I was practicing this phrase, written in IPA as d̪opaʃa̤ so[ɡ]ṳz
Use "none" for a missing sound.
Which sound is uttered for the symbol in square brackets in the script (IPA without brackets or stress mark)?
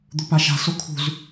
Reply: kʰ